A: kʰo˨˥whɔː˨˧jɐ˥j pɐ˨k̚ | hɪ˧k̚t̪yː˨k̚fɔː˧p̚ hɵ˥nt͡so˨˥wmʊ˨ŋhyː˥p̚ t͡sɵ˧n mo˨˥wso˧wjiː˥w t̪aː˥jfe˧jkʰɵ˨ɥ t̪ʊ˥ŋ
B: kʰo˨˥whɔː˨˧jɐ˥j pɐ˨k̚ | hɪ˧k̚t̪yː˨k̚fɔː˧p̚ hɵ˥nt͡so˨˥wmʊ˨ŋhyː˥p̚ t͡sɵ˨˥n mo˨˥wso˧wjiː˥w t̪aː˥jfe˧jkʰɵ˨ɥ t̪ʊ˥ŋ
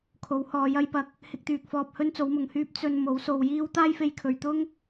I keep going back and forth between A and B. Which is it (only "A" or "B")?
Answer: A